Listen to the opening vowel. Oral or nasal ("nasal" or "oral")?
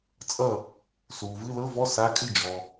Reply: oral